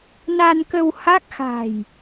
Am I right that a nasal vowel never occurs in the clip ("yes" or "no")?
yes